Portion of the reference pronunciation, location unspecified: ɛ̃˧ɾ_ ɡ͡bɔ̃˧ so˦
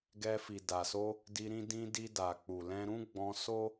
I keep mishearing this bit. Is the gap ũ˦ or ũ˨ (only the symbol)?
ũ˦